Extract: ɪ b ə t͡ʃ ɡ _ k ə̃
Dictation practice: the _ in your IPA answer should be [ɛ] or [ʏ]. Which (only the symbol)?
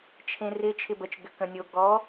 ʏ